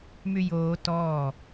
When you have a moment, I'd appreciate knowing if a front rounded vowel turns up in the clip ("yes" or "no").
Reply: yes